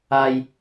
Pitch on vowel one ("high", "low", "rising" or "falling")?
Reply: high